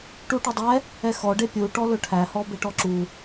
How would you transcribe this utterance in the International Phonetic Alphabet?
ʈ u ʈ ɵ dˤ ɛ | ɛ x ɔ ɖ e pʲ u ʈ ɔ l ɵ ʈʰ æ h ɔ b e ʈ ɔ ǁ u

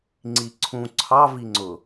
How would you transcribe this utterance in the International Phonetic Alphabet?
ŋ͡ǀ i ǀʰ ũ ǀʰ ɑ v i ŋ͡ǀ ʊ

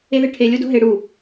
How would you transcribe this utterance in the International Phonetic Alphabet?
e ð e ʈʰ e lʲ o d o̤ ɦ e ɽ u

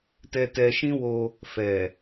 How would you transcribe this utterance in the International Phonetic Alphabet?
t ɛ˧ t ɛ˧ ʃ ĩ˦ w o˧ | f ɛ˨

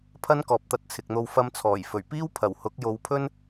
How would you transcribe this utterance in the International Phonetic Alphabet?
pʰ ɐ˥ n k ɔː˨ p̚ t̪ ɐ˧ t̚ t͡sʰ ɪ˨ k̚ n̪ o˧ w f ɐ˧ m t͡sʰ ɔː˨˩ j f ɵ˨˩ ɥ p iː˥ w pʰ ɐ˨˩ w h ʊ˨˥ k̚ j o˨˧ w pʰ ɵ˥ n

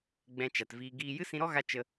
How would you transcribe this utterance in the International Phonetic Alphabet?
ɡ͡b ɛ̃˧ t͡ʃ a˨ t v iː˧ ɡ iː˦ j ɨ˦ s ĩ˧ ɾ ɔ˦ ɣ a˧ t͡ʃ ə˧

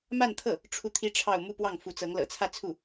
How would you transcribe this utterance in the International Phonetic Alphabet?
m a˥˧ n t̪ʰ ɤ˥˩ | ʈ͡ʂʰ u˥˩ t̪ʰ i˥ ʈ͡ʂʰ ɑ˥˧ ʊ̯ m u˥˧ p w ɑ˥˩ ŋ f u˧˥ t͡s ɤ˧˥ ŋ l ɤ̰˨˩ t͡sʰ ä˥˧ t͡sʰ u˥˩

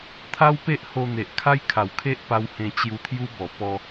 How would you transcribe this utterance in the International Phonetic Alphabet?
t̪ʰ a˦ w p e˦ ʔ h o˧ n̪ e˨ ʔ kʰ a˦ j kʰ a˨˩ w kʰ e˦ ʔ p a˧ w h ẽ˧ t͡ɕ j u˧ t̪ʰ j u˦ b ɔ˨˩ p ɔ˧

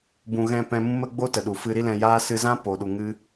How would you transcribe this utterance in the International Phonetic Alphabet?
b ũ˨ ɣ ɛ̃˦˨ p ɛ̃˧ m ũ˦ m ə˦ ɡ͡b o˦ t ə˨ ɗ u˨ f ɨ˧ ɾ i˦ l ɛ̃˧ j aː˦ s ɨ˧ z ã˦ p o˨ ɗ u˨ ŋ ɨ˧

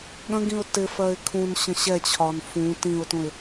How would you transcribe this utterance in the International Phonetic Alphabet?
ɠ ə̃ ɡ ĩ ʊ̯ t ɪ f ɜ ɪ̯ kʰ ũ n ɕ ə̃ ɕ ɛ t͡ɕʰ ɒ n f ũ t ĩ ʊ̯ t ũ ɪ̯

